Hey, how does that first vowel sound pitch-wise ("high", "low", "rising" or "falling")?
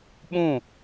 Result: falling